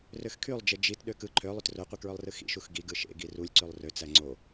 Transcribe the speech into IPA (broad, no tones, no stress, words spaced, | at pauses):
røxkʰylˠd͡ʒe d͡ʒit ɗøkɯ ǃʰølˠyt roqʷikɹølˠrɯ xḭʃux ɡiɡ ɯʃḛ ɡirulʲǀylˠ røt͡sæ ŋ͡ǀo